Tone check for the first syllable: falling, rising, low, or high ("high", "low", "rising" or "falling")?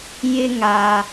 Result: low